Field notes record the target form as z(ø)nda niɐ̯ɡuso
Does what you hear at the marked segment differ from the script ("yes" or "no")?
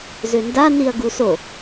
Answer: no